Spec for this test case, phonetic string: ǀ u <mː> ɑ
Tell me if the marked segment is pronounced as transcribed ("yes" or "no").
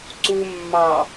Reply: yes